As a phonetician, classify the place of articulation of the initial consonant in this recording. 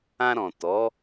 alveolar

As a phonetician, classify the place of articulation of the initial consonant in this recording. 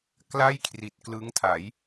velar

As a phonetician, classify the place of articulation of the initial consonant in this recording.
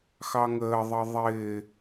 velar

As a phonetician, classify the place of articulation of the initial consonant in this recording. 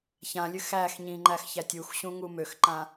palatal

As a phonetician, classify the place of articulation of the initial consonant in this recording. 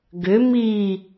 velar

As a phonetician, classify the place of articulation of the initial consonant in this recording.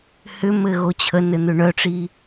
glottal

